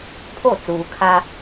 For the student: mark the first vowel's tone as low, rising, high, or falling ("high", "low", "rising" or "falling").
falling